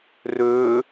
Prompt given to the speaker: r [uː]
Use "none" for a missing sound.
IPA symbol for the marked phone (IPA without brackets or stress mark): øː